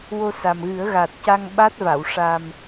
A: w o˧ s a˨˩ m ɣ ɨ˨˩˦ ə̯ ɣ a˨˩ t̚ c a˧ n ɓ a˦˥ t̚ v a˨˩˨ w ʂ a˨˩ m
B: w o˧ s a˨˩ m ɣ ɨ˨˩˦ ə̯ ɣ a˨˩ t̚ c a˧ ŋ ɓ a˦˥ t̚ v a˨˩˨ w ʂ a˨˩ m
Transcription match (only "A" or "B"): B